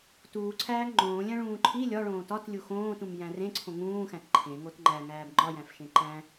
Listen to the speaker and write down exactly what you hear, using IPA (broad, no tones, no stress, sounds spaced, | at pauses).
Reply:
t uː ǀʰ æː ŋ ŋ͡ǃ õː lʲ æ̃ ɭ ũː ǃʰ i lʲ ɒ ɭ õː t ɒ t lʲ u x õː t ũ m j æ̃ r ẽ ǀʰ õ ŋ ũː x æ̃ t ǃʰ ẽ ŋ o t ŋ͡ǃ æ ŋ æː b ŋ͡ǃ ɒ j æ̃ f ʃ ẽ ǃ æ̃